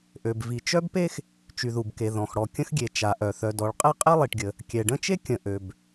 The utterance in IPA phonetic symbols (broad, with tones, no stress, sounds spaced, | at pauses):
ʔ ø˩ b v i˩ t͡ʃ œ˥ b p e˥ x | t͡ʃ y˩ ð u˩ b k e˩ ð ɔ̃˩ x ɽ ɔ˩ kʲ ə̃˥ x ɡʲ e˩ t͡ʃ a˩ ʔ œ˩ θ œ˩ d ɔ˩ ɭ qʼ ɛ˥ qʼ ɛ˥ lˠ i˩ ʈ ɡʲ ə˩ | kʲ ɛ˩ ɖ ə̃˥ t͡ʃ e˥ kʲ ə̃˩ ʔ ø˩ b